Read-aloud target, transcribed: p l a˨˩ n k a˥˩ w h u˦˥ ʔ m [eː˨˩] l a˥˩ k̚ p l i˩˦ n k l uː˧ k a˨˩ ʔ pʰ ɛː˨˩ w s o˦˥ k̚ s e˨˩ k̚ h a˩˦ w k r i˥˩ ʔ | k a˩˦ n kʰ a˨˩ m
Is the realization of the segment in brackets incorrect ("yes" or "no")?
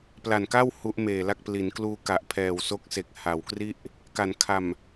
no